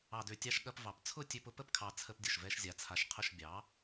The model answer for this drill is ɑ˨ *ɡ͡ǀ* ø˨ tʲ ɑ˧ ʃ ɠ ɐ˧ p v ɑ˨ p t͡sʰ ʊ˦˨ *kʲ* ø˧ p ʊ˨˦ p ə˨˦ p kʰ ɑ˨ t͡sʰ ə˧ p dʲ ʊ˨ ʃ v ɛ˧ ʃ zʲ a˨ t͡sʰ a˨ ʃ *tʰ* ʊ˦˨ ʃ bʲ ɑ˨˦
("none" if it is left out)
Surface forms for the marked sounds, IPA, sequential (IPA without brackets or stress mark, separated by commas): d, tʲ, qʰ